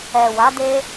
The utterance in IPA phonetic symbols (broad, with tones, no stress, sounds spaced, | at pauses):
ɛ˨ w a˨˦ d e˦